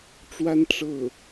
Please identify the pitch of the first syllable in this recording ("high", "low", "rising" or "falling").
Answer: high